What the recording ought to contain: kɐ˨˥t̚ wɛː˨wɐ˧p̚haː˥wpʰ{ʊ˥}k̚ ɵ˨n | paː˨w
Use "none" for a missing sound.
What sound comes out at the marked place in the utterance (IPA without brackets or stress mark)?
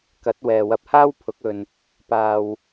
ʊ˨˥